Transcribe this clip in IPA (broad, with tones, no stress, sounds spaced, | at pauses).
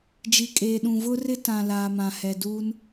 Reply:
d͡ʒ i˨ kʼ eː˨ ɗ ũ˨ v ʊ˦ r ɪ˦ t ã˨ l aː˨ m ã˨ h ɛ˨ d uː˦ n